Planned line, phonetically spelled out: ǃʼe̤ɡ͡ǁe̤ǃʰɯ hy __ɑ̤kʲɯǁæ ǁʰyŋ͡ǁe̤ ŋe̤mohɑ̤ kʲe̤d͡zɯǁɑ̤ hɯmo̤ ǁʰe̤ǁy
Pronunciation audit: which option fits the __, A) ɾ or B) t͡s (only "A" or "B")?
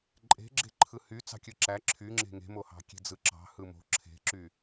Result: B